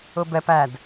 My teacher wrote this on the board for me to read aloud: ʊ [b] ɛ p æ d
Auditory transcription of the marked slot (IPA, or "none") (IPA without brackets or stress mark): b